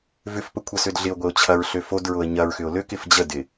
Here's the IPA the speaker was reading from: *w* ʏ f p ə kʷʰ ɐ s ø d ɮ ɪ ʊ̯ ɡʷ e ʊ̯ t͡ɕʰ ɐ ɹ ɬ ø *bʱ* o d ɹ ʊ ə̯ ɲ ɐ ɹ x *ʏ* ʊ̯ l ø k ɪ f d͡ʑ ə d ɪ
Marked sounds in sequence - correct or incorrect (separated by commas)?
incorrect, incorrect, correct